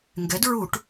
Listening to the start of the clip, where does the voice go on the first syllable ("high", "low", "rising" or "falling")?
rising